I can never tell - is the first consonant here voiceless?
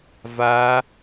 no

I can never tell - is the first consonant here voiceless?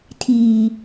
yes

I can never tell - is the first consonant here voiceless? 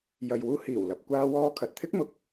no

